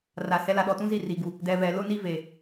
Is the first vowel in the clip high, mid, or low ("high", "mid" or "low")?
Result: low